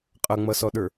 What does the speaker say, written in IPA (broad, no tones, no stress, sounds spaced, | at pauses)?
qʼ ʌ ŋ͡m ʌ s ɔ ɗ ə˞